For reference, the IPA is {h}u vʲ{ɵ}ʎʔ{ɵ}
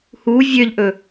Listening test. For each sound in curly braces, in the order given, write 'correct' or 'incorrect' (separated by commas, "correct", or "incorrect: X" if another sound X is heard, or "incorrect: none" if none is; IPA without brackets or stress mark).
correct, incorrect: ø, correct